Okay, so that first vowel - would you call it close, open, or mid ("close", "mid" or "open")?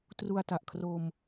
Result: close